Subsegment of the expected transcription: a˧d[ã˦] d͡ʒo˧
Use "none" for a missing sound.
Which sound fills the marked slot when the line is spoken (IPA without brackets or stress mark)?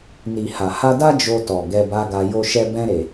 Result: a˦